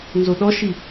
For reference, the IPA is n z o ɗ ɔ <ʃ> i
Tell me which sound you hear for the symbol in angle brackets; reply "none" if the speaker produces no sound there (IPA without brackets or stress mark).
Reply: ʃ